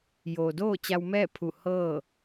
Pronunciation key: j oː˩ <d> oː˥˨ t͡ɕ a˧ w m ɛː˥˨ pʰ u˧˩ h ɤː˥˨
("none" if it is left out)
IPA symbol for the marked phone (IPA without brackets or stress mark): d